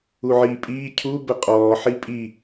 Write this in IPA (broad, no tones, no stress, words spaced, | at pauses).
uʕiːpʼiː cʰu bəqʼɔː ħipʼi